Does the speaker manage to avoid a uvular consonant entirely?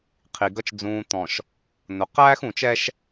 no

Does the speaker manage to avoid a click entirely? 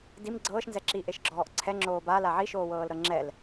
no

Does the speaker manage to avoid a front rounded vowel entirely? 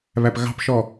yes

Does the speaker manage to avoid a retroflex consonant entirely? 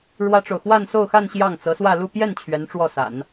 no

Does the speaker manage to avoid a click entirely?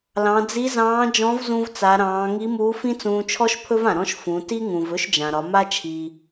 yes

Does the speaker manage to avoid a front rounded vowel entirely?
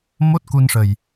yes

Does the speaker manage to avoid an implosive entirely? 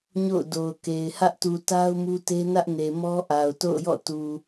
yes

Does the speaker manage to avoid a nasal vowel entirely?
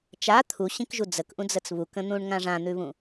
no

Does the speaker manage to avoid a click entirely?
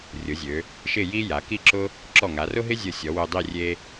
no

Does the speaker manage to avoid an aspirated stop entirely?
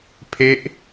no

